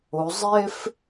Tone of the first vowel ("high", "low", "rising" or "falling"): rising